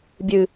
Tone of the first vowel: low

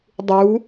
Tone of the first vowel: rising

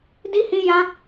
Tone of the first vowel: high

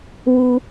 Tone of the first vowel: high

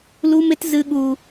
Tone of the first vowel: high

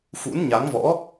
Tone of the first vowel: rising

